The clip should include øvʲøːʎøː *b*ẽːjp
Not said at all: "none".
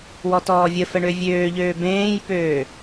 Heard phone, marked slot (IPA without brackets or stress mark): b